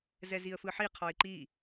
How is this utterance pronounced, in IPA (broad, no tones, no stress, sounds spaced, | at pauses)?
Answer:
z ɛ z i ə̯ f ɯ ħ i qʰ ɔ ɪ̯ ǃ i